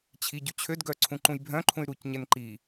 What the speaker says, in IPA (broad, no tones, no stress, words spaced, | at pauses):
t͡ɕʰiɟʉ t͡ɕʰødɡœ ǀʰũǃũjbʱœ̃ǃʰũy̯ ɾucɲɛn ǃi